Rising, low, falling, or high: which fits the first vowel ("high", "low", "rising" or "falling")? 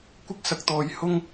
high